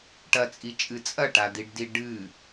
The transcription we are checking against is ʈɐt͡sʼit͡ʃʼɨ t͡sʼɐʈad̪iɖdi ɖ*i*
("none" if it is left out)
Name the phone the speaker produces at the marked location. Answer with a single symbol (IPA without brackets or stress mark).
ɨ